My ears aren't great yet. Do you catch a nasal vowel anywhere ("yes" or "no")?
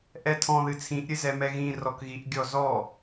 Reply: yes